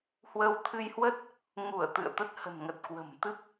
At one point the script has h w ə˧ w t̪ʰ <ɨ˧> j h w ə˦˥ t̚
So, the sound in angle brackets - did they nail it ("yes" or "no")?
yes